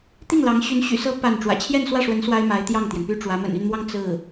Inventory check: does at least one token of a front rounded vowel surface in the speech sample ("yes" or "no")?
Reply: yes